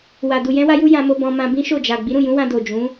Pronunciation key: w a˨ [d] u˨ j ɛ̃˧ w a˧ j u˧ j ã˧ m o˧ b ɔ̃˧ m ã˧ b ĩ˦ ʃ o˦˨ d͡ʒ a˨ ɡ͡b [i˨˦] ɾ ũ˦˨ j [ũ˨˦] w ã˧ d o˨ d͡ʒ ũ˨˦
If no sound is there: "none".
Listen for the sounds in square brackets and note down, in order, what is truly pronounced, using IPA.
d, i˨˦, ũ˨˦

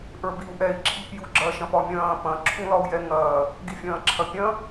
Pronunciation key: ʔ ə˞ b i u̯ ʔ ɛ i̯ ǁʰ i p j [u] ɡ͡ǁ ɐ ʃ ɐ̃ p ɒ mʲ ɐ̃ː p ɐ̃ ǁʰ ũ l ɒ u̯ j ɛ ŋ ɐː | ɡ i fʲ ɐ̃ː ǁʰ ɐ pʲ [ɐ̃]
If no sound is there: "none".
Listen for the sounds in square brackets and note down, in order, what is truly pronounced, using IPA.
u, ɐ̃

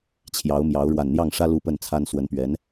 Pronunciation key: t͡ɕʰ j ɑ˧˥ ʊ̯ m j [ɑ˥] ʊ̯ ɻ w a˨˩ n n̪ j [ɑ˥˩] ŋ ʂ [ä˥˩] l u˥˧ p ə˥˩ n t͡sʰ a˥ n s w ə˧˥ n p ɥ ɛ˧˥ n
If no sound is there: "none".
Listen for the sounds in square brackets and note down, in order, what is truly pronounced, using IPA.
ɑ˧˥, ɑ˥˩, ä˥

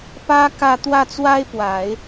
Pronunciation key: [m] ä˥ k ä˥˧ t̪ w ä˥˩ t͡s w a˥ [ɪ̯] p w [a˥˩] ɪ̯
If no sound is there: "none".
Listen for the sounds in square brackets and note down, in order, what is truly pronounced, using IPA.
p, ɪ̯, a˨˩˦

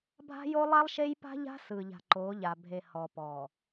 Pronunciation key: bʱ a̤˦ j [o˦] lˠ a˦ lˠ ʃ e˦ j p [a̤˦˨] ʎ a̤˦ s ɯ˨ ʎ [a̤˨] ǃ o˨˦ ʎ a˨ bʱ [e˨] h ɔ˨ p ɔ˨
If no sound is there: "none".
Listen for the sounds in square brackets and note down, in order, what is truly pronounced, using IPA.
o˦, a̤˦, a̤˨, e˨

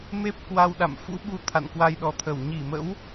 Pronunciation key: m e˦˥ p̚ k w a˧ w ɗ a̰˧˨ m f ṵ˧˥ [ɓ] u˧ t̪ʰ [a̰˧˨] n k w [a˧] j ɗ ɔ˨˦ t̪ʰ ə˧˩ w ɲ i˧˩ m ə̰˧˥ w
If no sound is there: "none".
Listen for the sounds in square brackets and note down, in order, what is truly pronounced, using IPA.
ɓ, a̰˧˨, a˧

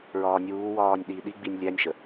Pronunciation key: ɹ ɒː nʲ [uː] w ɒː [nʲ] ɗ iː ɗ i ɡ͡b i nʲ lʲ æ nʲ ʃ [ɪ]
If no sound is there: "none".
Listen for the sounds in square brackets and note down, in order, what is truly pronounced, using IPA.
uː, nʲ, ə

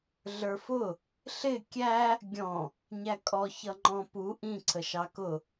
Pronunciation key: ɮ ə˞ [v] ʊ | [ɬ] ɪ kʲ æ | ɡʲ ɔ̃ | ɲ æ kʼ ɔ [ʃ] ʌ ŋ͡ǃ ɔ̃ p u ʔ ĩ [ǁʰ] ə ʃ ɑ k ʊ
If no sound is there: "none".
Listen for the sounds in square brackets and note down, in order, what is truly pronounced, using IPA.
f, ɬ, ç, ǀʰ

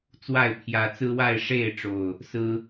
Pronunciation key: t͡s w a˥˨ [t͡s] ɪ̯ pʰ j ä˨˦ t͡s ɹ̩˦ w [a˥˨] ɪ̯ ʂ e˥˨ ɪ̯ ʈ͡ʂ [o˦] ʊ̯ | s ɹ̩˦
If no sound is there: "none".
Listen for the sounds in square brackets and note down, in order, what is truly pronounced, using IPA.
none, a˥˨, o˨˩

